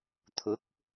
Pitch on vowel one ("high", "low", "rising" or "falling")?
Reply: rising